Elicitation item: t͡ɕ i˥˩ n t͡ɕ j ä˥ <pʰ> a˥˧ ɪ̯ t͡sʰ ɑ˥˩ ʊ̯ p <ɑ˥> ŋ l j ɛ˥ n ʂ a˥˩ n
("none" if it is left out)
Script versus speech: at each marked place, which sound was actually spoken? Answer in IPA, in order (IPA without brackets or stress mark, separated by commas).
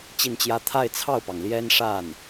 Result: t̪ʰ, ɑ˩